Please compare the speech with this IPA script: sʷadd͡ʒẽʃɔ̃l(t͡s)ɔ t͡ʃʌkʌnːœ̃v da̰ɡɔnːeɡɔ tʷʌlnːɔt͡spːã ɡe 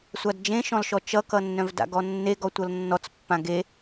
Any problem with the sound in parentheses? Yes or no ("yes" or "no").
yes